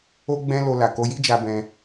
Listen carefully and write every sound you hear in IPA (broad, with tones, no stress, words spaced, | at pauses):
o˦ɡ͡bɛ̃˦lo˧la˨ ko˧ji˦d͡ʒa˧bɛ̃˧